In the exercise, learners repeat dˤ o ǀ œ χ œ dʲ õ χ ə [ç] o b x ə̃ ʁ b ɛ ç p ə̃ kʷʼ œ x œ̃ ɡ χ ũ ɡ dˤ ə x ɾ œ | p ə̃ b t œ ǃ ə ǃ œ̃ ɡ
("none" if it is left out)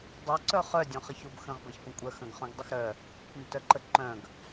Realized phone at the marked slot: ç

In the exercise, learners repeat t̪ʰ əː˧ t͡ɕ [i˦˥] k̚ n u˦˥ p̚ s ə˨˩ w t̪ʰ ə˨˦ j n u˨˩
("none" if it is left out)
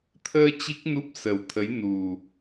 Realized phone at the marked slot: i˦˥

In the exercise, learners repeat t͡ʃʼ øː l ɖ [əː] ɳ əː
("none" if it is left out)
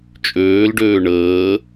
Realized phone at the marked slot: øː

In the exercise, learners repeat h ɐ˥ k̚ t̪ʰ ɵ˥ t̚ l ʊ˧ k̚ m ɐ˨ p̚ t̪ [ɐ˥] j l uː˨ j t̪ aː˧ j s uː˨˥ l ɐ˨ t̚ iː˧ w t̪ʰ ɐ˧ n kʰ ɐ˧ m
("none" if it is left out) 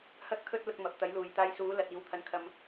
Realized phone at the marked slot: ɐ˨˥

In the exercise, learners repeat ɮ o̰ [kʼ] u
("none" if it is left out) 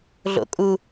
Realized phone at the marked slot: kʼ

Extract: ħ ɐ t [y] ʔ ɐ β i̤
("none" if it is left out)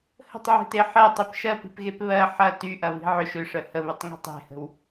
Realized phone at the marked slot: y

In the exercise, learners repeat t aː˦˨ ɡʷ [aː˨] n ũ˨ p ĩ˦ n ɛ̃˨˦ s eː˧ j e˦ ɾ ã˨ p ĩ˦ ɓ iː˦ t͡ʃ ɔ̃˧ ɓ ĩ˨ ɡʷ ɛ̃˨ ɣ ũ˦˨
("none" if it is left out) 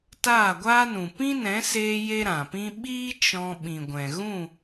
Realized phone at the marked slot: aː˦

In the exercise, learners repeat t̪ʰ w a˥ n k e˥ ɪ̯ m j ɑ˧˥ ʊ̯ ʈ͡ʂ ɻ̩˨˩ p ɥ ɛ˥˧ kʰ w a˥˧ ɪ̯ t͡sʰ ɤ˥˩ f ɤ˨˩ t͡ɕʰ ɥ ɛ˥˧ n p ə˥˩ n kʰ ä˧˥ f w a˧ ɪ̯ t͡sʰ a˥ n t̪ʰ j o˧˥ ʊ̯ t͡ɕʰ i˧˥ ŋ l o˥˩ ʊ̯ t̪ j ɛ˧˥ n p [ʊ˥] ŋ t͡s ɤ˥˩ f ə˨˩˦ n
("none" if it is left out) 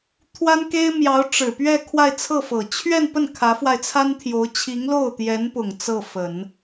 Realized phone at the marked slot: ʊ˨˩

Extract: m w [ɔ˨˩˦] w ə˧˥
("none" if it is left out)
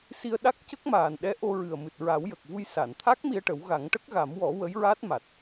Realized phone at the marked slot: ɔ˨˩˦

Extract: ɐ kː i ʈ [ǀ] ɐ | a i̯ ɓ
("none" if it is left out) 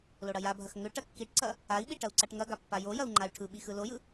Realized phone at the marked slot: ǀ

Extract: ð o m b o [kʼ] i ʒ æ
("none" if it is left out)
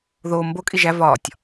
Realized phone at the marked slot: kʼ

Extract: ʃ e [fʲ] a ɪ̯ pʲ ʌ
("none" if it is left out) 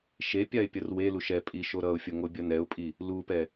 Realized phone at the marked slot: pʲ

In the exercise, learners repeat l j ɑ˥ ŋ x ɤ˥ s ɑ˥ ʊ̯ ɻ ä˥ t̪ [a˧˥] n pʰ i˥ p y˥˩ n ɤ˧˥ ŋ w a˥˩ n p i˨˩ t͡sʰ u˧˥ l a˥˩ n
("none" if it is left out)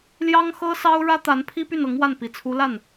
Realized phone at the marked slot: a˧˥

